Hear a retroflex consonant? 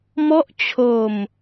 no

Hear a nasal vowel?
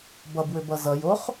no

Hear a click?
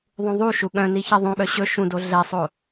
no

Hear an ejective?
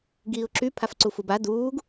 no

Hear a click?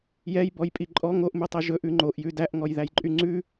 yes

